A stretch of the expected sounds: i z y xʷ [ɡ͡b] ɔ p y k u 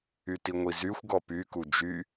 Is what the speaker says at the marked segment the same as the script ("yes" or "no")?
no